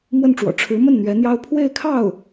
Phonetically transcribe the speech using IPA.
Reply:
mwə˥˩nʈ͡ʂwɔ̰˨˩ ʈ͡ʂʰɻ̩˧˥mə˥˩n n̪ɥɛ˧˥n̪jɑ˥ʊ̯ pʰwe˥˧ɪ̯kʰɑ˥˩ʊ̯

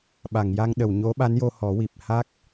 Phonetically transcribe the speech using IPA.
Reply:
ɓa˨˩˨ŋja˧ŋɗə˨˩˨w ɲo˧˥ɓa˧˥njo˧ hɔ˨˩˦wi˨˩p̚ ha˦˥k̚

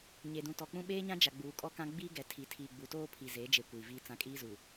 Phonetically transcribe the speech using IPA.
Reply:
ɲe˨dũ˨tɔ˨k͡pũ˦ ɓeː˦ɲã˦ d͡ʒa˨ɡ͡buː˨ kʼɔ˦kã˦ ɡ͡bi˦ɡɛ˨tʰi˨ tʰiː˨ɡ͡bu˨toː˦ pʰi˨ze˨˦d͡ʒe˨ kʷiː˨viː˦t͡sã˦ kʼiː˦zuː˨

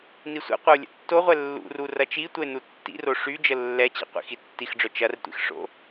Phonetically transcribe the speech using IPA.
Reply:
nisʷɛ̰qʷəo̯ lʲə̰tːoʁʷɛ lːṵru rɐt͡ʃitʷəe̯ nutːḭro ʂy d͡ʒəlːɛt͡ɕḭ qʷḭxitːixɖ͡ʐœ t͡ʃɐrtʷḭx ʂo̰

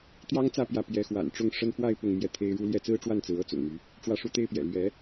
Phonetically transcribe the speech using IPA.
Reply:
t̪jɑ˥ŋt͡sä˥˧ pjä˥˩ pjɛ˧˥xwa̰˨˩nʈ͡ʂʊ˥˩ŋ ʂə˥n fwa˥˧ɪ̯ pʊ˥˧ŋmjɛ˥˩t̪ʰe˥ɪ̯ɻu˥ ljɛ˥˩t͡sɹ̩˥ʈ͡ʂwa˥˩n t͡sɹ̩˧˥ɤ˥t͡sʊ̰˨˩ŋmy˧˥ | ʈ͡ʂwä˥˩ʂu˥t̪e˥ɪ̯pjɛ̰˨˩ lɥɛ˧˥

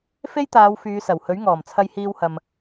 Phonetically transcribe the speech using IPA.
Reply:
fe˥j t̪aː˨˧w fyː˨˧sɐ˨˩whɵ˨˥ɥŋɔː˨˩m t͡sʰɐ˧jhiː˧whɐ˨m

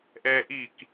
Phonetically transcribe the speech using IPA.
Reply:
ʔɛːʔik

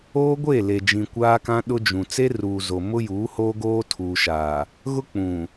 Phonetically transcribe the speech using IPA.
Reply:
oː˦ɡʷe˦˨le˨d͡ʒĩ˨ kʷaː˦kã˦ ɗʊ˦d͡ʒũ˨ t͡se˦ruː˨ zo˨mʊ˦juː˨˦ hoː˦ɡoː˦ tʰuː˨ʃaː˨ | ɣʊ˦ k͡pũ˨

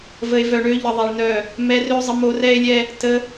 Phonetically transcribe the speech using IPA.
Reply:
və˨e̯vœ˨ɳø˧ ʎə˧ðˤɛ˧ɭnœ˦˨ | mɛ˧rø˦ zˤə˧mo˧ rɛ˦e̯lʲɛ˦ | tə˧

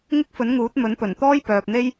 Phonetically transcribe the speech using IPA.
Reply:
ŋɪ˥k̚fɵ˨˥nŋuː˨˥t̚ mɵ˨˥npɵ˨˩n t̪ɔː˥jpœː˨p̚n̪e˥j

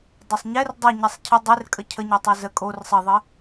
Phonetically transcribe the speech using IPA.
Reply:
dˤesˤɲɛr dˤə ɲɛsˤcʰə dˤerkʼə cʰəɲɛtˤɛ zə kʼor sˤɘðˤɘ

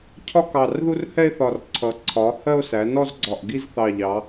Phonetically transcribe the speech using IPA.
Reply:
cʰɒ˦kɑ˨˩rðu˦r hɛ˦e̯θɒ˨˩rǀʰʌ˩˧ ǀʰɒ˩˧ hɜ˦o̯sæ˩˧nɔ˦zɡ͡ǀɒ˨˩ʔ ɡi˦zθɑ˨˩ʎɑ˩˧

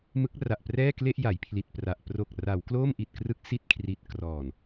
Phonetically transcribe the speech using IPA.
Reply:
mɯ˦˥k̚ra˨˩ʔprɛː˥˩kle˥˩ʔ ja˩˦jpʰli˨˩t̚pra˨˩ʔ pro˨˩k̚ ra˩˦wkloː˥˩m ʔi˨˩t̚krɯ˦˥k̚ si˥˩t̚kʰri˨˩t̚krɔː˨˩n

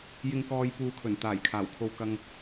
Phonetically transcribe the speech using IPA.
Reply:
jɪ˧ŋkɔː˧j puː˧kʰɵ˨˩n t̪aː˨˩jkʰaː˨˩wkʰo˧wkɐ˧ŋ

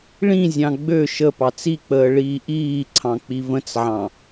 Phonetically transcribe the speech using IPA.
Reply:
ɭĩzʲɑ̃ ɡ͡bø ʃə pɑt͡sik͡pəː ɭiːʔiːǀʰɑ̃ k͡pivə̃t͡sʕɑ̃

